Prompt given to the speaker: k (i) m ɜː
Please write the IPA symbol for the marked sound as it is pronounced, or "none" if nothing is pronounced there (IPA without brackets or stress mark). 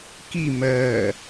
i